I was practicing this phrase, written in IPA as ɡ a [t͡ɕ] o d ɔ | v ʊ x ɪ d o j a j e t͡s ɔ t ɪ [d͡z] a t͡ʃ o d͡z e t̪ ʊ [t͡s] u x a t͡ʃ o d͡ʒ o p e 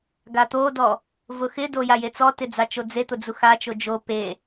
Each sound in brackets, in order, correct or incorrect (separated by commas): incorrect, correct, incorrect